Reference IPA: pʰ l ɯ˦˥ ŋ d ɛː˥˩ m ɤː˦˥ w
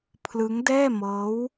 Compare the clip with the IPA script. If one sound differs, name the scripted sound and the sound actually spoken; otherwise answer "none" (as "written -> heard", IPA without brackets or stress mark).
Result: none